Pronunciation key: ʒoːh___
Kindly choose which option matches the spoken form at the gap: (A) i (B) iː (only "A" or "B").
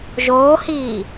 B